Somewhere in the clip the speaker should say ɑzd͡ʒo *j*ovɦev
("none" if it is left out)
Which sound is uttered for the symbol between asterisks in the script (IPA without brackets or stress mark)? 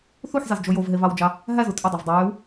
j